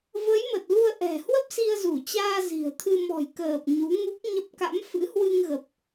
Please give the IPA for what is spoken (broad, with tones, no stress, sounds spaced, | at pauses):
v ə˨˦ j m ə˨˩ t̚ l u˧ ə̯ ʔ ɛ̤˨˩ h w ə˦˥ p̚ s i˧ ə̯ z u˧˩ t͡ɕ aː˧ z i̤˨˩ ə̯ t̪ʰ ɨ˧ m ɔ̤˨˩ j k əː˨˩ p̚ ɲ u˨˦ ŋ u˦˥ k̚ ɲ ə˦˥ p̚ k a̰˧˥ m f ɨ̰˧˥ h w ɨ˧ ŋ ɣ ə˨˩ p̚